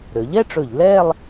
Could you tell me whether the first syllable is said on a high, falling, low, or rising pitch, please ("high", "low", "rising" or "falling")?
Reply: rising